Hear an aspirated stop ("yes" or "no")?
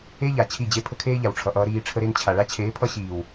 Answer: yes